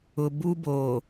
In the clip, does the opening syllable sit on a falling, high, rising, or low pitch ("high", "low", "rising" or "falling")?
low